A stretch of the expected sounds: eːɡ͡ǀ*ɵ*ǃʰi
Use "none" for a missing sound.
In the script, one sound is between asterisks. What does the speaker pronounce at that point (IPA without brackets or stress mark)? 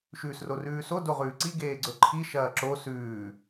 ɵ